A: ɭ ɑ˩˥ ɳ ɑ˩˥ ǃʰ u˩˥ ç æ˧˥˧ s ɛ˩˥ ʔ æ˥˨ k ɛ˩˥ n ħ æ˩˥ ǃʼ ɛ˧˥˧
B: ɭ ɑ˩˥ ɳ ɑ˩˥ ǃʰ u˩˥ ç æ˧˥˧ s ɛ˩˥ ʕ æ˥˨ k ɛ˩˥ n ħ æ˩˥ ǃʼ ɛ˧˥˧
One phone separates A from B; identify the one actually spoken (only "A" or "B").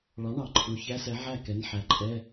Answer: B